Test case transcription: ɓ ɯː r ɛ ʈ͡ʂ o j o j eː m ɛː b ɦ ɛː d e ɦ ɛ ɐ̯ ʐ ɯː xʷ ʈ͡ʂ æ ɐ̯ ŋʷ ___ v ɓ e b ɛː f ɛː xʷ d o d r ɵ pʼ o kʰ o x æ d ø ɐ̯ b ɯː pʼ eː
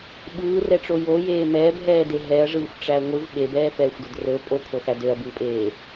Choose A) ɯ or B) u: A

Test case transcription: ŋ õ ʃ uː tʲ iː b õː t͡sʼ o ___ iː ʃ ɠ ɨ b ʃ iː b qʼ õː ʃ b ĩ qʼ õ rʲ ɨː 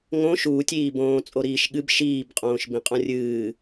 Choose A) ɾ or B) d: A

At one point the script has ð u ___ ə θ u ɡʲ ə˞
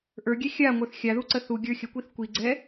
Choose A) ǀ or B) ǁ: A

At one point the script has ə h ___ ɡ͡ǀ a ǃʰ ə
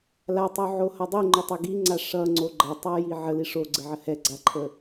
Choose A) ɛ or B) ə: A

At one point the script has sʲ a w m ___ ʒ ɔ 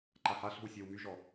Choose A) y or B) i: A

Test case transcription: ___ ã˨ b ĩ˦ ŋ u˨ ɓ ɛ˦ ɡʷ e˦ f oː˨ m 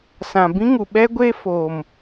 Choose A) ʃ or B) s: B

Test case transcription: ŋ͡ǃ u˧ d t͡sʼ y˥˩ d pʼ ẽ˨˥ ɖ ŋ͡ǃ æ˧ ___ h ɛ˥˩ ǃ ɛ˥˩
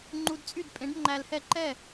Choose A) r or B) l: B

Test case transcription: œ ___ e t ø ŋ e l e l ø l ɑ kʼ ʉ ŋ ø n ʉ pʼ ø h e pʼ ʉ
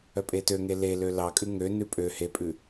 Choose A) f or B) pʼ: B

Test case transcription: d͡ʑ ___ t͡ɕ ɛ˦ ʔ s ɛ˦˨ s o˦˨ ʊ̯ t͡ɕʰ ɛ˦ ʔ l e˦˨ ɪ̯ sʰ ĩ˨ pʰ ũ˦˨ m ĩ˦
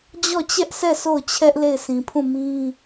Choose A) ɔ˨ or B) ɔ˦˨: B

